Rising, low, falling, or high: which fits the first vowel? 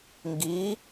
rising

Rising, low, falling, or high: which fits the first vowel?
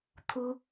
high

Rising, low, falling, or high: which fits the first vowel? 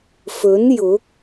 rising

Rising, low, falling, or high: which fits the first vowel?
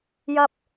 low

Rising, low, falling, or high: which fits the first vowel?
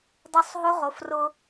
high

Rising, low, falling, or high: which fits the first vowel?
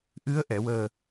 rising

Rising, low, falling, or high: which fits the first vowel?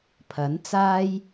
rising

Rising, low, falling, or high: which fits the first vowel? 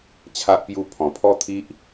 high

